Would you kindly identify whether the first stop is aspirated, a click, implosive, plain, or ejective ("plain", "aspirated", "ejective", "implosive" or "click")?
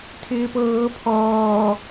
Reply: aspirated